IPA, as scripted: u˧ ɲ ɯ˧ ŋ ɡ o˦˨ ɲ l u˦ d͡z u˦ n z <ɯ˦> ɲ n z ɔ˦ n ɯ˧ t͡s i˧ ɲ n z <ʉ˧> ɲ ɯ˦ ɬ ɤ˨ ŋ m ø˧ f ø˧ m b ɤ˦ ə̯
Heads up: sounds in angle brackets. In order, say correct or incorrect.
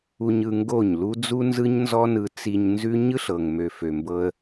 correct, incorrect: ʉ˦

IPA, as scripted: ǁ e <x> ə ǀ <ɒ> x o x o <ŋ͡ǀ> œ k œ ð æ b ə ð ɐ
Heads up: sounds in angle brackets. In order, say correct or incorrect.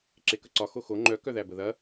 incorrect: k, correct, incorrect: ŋ͡ǃ

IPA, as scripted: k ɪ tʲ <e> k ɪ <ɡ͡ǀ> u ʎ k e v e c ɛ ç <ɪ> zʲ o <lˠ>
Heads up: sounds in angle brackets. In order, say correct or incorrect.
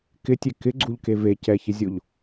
correct, correct, correct, incorrect: ʎ

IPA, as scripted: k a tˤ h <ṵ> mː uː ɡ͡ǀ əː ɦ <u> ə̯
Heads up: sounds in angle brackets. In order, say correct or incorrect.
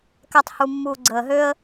incorrect: u, incorrect: ø

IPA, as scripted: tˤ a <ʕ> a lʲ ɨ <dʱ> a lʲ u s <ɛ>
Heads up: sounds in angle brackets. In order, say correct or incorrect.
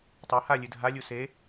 incorrect: h, correct, incorrect: e

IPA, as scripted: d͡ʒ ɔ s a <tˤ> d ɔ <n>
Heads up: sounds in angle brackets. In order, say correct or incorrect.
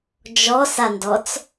incorrect: n, incorrect: t͡s

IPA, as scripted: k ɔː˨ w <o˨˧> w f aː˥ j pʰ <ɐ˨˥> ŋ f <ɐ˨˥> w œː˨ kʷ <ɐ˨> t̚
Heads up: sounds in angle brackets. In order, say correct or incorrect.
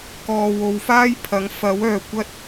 correct, correct, correct, incorrect: ɐ˥

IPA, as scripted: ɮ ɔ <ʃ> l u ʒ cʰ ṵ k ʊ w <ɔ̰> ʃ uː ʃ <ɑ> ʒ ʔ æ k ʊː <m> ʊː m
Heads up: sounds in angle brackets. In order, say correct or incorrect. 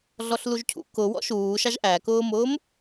incorrect: ɬ, correct, correct, correct

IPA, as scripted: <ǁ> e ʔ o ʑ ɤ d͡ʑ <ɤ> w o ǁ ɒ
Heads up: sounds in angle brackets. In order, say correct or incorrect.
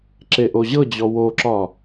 correct, incorrect: ɔ

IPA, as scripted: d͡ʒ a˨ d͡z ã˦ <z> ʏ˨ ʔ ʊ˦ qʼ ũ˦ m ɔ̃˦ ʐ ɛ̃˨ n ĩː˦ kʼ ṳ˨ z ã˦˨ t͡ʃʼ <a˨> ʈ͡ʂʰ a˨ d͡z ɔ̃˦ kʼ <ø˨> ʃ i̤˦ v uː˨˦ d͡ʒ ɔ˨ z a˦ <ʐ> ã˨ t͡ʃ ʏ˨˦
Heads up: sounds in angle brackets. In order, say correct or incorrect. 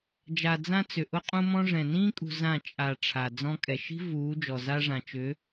incorrect: t͡s, correct, incorrect: ɛ˨, correct

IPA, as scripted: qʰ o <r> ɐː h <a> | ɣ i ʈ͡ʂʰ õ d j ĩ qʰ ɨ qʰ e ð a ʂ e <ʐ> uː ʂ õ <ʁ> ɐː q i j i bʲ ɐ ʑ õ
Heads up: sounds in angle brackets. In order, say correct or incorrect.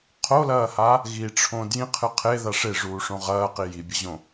incorrect: l, correct, correct, correct

